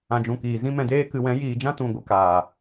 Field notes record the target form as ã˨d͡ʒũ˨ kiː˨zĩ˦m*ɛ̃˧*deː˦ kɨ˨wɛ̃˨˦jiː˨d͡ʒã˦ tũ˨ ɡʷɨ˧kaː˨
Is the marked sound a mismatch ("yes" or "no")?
no